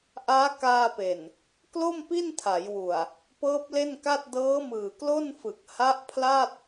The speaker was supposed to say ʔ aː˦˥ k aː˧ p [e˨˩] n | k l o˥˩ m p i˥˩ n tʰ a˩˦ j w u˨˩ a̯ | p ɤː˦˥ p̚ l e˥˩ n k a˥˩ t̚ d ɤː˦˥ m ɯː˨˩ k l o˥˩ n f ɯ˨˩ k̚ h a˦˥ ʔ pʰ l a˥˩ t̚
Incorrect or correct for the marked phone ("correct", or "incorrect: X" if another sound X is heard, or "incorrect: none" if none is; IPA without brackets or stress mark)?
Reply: correct